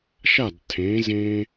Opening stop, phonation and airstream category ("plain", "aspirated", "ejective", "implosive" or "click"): plain